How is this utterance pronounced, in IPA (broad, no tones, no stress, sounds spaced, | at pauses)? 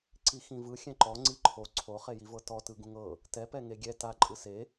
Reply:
ǀ i x ĩ v ɯ xʲ ɛ̃ ǃ ɔ ŋ͡ǀ i ǃʰ o ǀʰ o χ e j i v ɤ t ɔ t ɯ ɡ ũ ŋ ɤ | t ɛ p ɛ ŋ e ɡʲ ɛ t a ǃʼ ɯ s e